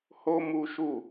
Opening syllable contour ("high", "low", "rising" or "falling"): high